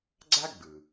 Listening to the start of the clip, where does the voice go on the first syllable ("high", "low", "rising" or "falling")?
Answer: high